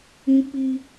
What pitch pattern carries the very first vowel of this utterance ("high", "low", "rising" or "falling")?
high